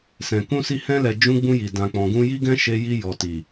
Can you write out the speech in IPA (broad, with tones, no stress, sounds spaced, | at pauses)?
s ɛ̃˨ k ũ˧ s i˧ h ɛ̃˧ l ɛ˨ d͡ʒ ũ˧ ɡ͡b ũ˧ j i˨ d ã˨ k͡p ɔ̃˨ ɡ ũ˧ j i˦ ɡ ɛ̃˦ ʃ e˧ j i˧ j ɔ˨ t i˨